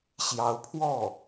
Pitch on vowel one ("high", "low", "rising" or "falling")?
rising